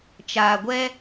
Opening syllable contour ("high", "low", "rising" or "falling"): low